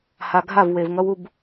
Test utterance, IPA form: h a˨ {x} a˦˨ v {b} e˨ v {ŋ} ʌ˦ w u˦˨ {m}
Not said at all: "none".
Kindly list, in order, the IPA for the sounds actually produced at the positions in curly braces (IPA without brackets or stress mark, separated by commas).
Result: ɡʱ, w, ŋ, b